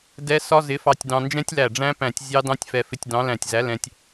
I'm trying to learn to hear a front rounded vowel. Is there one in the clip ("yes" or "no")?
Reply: no